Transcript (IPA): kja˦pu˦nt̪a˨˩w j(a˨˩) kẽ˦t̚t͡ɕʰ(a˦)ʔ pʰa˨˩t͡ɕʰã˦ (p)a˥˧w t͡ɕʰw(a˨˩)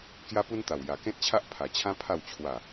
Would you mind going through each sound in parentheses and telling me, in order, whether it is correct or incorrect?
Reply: correct, correct, incorrect, correct

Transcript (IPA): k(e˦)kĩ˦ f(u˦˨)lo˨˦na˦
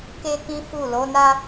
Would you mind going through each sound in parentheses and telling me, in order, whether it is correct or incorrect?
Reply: correct, correct

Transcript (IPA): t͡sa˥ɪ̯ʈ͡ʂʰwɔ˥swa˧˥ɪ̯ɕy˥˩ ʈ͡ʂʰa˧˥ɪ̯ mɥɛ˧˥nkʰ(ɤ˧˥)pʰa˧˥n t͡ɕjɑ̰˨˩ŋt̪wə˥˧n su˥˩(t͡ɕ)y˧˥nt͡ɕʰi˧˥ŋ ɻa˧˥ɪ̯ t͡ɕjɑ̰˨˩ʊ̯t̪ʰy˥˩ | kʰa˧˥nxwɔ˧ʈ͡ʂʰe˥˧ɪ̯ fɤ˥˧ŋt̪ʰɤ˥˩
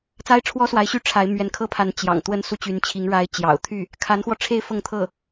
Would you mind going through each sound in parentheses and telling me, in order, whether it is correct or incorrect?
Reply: incorrect, correct

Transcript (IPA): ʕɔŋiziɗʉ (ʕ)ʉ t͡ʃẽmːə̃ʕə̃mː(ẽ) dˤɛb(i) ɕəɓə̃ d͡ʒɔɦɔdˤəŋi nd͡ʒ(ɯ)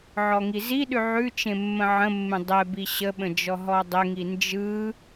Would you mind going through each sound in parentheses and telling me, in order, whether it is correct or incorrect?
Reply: correct, correct, correct, correct

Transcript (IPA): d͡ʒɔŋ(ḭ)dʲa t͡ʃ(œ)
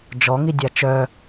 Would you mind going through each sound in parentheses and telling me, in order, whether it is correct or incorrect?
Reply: incorrect, correct

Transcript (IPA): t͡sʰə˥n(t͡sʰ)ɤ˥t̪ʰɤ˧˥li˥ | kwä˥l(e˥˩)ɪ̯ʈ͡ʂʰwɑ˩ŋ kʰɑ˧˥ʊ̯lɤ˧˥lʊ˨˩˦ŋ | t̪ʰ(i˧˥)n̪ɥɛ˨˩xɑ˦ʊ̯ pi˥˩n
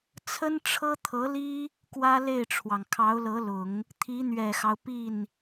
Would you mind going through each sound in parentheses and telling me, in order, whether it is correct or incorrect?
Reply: incorrect, correct, correct

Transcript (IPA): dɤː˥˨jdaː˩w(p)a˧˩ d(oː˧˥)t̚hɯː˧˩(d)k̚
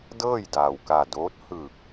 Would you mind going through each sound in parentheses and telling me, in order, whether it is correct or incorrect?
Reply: incorrect, correct, incorrect

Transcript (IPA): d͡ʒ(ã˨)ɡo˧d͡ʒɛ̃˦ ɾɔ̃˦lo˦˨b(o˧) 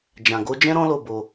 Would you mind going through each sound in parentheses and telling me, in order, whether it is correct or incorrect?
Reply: correct, correct

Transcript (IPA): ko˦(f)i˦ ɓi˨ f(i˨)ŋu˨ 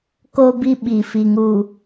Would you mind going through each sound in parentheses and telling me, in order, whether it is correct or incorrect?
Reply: incorrect, correct

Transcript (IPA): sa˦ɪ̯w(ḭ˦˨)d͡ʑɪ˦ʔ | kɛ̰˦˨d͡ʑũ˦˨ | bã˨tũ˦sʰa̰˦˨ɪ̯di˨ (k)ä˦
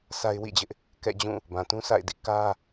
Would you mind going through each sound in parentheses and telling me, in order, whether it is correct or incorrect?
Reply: correct, correct

